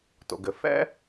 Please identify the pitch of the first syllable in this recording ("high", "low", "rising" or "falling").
low